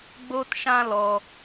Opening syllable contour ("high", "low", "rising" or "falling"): high